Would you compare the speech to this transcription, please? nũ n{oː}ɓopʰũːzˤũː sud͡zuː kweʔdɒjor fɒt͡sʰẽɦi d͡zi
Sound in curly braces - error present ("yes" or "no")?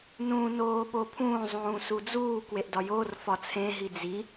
no